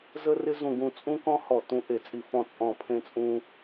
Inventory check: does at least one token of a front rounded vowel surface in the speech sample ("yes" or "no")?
no